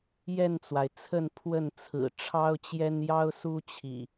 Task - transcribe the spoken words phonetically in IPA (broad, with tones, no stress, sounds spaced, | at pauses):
j ɛ˥˨ n t͡s w a˩ ɪ̯ t͡sʰ ə˥˨ n pʰ w ə˥˨ n t͡sʰ ɹ̩˨˩ ʈ͡ʂʰ ɑ˦ ʊ̯ t͡ɕ j ɛ˦ n j ɑ˦ ʊ̯ s u˦ t͡ɕʰ ḭ˨˩